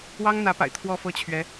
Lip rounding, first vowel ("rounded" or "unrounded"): unrounded